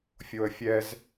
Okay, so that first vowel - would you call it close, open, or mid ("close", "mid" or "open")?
mid